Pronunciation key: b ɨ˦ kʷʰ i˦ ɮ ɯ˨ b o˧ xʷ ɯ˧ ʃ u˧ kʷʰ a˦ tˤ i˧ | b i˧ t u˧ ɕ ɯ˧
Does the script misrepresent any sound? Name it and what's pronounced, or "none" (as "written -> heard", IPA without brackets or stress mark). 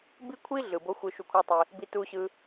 ɨ˦ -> i˦